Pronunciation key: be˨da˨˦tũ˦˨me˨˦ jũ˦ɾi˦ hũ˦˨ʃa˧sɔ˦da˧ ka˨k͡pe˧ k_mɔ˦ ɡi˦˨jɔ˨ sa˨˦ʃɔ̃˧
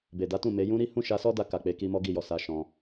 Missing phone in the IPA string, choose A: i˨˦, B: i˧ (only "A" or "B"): B